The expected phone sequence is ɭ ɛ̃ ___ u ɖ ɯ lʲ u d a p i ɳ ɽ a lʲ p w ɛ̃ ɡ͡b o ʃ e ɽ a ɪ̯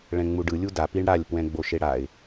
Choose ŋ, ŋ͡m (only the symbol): ŋ͡m